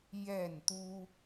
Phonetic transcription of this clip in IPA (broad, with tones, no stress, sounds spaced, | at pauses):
j ɛ˥˨ n t̪ u˦